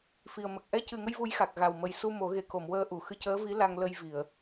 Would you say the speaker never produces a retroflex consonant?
yes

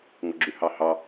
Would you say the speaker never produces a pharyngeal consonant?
yes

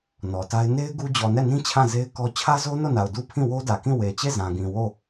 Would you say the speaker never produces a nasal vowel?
no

